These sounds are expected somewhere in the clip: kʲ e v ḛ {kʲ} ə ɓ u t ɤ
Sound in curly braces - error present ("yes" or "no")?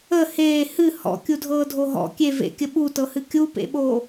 no